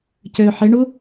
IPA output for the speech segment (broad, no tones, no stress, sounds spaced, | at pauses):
c ø ħ e ɳ u